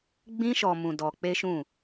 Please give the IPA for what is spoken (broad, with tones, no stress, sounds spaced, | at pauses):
ɡ͡b ĩ˦ ʃ ɔ˧ m ũ˧ d ɔ˧ k͡p e˦ ʃ ũ˦˨